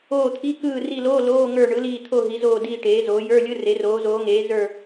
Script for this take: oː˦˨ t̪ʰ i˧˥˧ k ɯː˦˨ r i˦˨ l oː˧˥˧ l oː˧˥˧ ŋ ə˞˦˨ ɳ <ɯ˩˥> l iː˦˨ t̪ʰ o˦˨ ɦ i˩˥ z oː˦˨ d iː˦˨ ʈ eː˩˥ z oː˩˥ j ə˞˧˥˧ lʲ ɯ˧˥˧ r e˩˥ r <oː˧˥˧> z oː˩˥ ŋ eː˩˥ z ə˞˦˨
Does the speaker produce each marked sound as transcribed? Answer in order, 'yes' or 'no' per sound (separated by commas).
yes, no